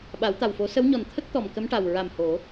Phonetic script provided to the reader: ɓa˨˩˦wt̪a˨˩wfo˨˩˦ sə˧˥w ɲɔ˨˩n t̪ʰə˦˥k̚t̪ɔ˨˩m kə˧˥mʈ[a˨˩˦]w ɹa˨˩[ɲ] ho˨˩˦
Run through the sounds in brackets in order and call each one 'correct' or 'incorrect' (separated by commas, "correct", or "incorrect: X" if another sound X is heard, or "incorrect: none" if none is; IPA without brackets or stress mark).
incorrect: a˨˩, incorrect: m